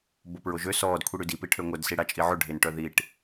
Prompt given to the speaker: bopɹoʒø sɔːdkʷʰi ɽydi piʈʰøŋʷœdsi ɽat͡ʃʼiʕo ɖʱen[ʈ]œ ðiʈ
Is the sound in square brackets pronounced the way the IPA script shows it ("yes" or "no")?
yes